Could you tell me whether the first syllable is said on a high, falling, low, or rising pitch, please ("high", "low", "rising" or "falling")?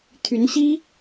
rising